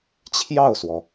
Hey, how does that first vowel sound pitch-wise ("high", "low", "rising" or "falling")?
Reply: falling